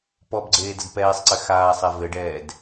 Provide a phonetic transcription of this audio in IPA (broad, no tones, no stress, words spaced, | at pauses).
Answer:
pɔbɡ͡ǀeːdəd pɛːsˤǀɘ xaːsˤɛ vɘɖɛːd